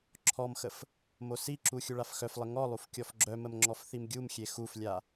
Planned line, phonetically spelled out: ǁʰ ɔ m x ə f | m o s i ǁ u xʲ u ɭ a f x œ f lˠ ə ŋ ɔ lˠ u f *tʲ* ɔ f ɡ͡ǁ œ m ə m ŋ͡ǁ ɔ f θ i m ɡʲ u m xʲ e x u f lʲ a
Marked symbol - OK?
no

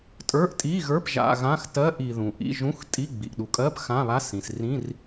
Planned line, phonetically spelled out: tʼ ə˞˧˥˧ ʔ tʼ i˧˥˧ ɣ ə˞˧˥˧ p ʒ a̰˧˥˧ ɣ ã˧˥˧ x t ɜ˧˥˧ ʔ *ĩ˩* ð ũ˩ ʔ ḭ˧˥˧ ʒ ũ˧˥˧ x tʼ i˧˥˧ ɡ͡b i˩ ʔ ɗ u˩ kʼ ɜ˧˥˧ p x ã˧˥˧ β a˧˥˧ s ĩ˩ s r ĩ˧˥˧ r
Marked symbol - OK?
no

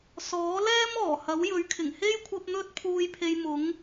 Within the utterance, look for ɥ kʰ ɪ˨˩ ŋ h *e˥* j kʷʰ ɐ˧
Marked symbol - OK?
yes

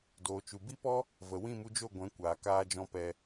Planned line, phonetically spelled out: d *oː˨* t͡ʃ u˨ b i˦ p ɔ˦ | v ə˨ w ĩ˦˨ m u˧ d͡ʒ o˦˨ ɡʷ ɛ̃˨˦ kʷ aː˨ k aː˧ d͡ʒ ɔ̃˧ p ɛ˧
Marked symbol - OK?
yes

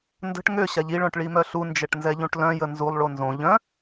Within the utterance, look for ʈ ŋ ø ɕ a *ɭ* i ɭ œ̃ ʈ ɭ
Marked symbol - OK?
no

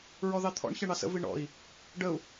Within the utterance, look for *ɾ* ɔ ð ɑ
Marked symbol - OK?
no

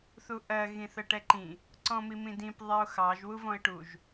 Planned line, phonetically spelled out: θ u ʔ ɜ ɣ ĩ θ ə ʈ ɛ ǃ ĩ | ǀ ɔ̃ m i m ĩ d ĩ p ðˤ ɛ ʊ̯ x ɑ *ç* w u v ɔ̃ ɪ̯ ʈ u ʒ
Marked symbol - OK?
no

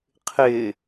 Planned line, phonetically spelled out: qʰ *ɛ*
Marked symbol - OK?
no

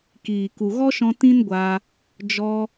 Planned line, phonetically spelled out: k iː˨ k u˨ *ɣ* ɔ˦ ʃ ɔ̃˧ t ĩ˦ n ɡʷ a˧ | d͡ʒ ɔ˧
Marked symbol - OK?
yes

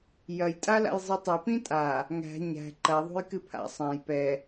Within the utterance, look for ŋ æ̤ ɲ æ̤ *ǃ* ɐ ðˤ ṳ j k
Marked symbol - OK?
yes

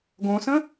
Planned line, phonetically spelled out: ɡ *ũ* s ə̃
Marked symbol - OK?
no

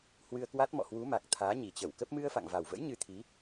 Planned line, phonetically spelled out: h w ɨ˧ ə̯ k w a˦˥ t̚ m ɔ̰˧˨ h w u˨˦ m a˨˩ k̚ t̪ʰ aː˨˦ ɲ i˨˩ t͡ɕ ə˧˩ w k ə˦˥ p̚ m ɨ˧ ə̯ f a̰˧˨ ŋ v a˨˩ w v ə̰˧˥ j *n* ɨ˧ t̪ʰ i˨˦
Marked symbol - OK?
no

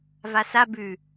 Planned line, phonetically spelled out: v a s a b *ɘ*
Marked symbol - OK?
no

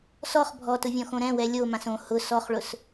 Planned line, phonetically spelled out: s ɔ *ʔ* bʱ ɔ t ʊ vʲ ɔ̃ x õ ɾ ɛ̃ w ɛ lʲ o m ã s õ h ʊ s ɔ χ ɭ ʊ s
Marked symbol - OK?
no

